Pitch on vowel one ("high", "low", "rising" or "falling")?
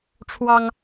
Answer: high